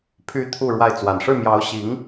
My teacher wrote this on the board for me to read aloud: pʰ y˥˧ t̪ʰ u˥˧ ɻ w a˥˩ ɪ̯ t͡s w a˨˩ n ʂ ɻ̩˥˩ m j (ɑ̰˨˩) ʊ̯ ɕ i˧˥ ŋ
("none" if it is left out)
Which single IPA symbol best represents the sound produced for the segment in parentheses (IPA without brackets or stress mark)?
ɑ˧˥